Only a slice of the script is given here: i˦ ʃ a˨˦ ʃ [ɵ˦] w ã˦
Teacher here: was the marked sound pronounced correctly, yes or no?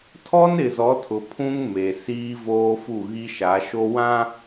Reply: no